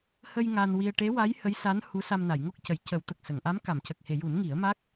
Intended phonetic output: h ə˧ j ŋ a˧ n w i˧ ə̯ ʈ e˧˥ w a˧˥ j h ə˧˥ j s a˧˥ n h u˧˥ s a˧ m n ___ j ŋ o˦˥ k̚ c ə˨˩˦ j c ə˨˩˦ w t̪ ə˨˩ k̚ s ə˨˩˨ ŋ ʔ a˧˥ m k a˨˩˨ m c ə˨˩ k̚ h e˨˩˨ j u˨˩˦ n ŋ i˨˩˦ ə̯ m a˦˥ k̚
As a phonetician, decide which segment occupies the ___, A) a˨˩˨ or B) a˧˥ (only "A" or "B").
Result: A